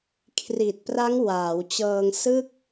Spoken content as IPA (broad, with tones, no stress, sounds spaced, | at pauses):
kʰ r i˨˩ t̚ p r a˦˥ ŋ w aː˩˦ w t͡ɕ ɤː˧ ŋ s ɯ˥˩ k̚